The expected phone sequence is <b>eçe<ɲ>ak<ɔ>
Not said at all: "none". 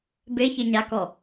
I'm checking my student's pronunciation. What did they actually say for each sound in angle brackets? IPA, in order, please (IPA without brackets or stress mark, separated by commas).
b, ɲ, ɔ